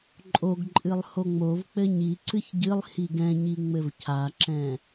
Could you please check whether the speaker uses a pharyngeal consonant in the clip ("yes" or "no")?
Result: no